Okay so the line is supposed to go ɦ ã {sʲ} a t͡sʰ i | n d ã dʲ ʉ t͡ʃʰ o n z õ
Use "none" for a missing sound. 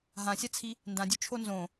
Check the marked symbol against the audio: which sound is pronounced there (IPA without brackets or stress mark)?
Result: sʲ